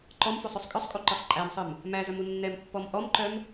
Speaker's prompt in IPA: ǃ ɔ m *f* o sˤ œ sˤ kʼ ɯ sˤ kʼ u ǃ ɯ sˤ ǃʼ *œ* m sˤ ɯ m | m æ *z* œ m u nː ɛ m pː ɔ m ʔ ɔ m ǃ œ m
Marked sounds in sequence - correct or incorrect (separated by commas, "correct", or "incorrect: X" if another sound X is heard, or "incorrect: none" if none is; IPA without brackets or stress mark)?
correct, incorrect: æ, correct